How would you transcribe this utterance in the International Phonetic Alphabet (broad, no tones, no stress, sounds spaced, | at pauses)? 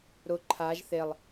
ɾ ʊ ǃʰ a ʒ θ e lˠ